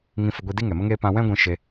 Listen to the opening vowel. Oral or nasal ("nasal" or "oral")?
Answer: nasal